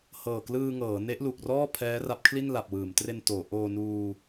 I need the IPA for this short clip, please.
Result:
h ɤː˨˩ k l ɯː˧ ŋ ɤː˩˦ n e˦˥ ʔ l u˨˩ k̚ r ɔː˥˩ pʰ ɛː˦˥ r a˦˥ p̚ kʰ l i˥˩ n l a˨˩ p̚ w ɯː˩˦ m t r e˧ n t oː˩˦ ʔ oː˧ n uː˧

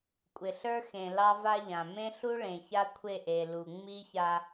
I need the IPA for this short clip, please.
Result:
kʷʼ ɪ˨ ɬ ə˞˦ x ẽ˨ l ɑ˦ v a˦ ʎ ã˨ m ẽ˦ ɬ u˦ ɭ ẽ˨ ç a˦ kʷʰ e˦˨ ʔ e˨ l u˨ ŋ͡m i˦ ç a˦

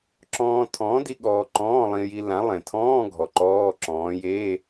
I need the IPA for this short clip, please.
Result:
ǁ ɔ̃ː˧ tʰ ɔ̃ː˨˥ d i˧ ɠ ɔː˧ ǃ ɔ̃ː˧˥˧ lˠ ĩ˧ j i˧ l ã˨˥ lˠ ẽ˨˩ tʰ ɔ̃ː˧˥˧ ɡʱ ɔ˨˩ ǃ ɔː˧˥˧ ǁ ɔ̃ː˨˥ j eː˧˥˧

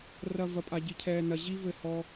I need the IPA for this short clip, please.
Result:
r ɐ˧ v ɐ˧ pʼ a˧ ɟ i˧ cʰ ɛː˧ n ɐ˧ ʑ i˦ v ɘ˧ h ɔ˧

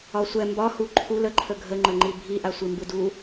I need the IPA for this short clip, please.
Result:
ɒ sʷ ɛ m b ɒ h u ǃʰ u l ə ǃʰ ə ɡʱ ə ŋ͡ǃ ə ŋ͡ǃ i bʱ i ʔ a sʷ i m b ɯ d u

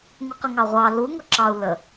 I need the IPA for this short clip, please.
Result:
ŋ u q ə ŋ ɑ ʁʷ ɑ l u ŋ ʊ ǁ ɑ u̯ l ə

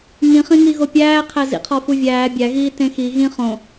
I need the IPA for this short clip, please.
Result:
ŋ ĩ χ ĩ ŋ i ɣ o pʲ æː qʰ æ z ḭ qʰ ɒ f u vʲ æː bʲ æ ɣ iː t ẽ x i ɣ ĩ χ õ

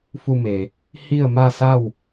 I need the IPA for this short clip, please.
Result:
f u˧ m e˩ | h i˥˨ ə̯ m a˥˨ s a˥˨ w

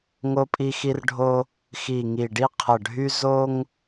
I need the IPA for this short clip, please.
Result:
ŋ o˧ pʼ i˧ x i˧ r ɖʱ o˧ | x i˨˩ ŋ i˨˩ ɖ i˧ qʰ ə˨˩ ɖʱ y˧ z o˧ ŋ

